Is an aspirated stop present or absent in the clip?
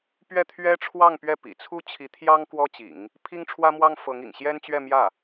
present